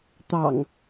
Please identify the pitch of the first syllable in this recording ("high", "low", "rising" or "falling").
low